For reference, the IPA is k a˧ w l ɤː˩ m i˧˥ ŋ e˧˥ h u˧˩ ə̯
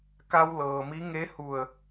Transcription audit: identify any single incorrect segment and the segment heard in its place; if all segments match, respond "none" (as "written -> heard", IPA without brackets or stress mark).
none